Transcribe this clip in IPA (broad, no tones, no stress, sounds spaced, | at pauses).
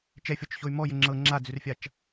t͡ʃ ɛ fʲ ɔ t͡ʃ ç o y̯ m ɔ j ɘ ŋ͡ǁ ɤ ŋ͡ǁ a d͡z ʉ r fʲ a t͡ʃ